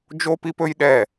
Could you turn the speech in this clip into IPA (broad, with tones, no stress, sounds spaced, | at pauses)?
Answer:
d͡ʒ o˦ p i˦ p ɵ˦ j ɗ ɛ˦˨